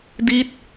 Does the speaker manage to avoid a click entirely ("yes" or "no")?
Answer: yes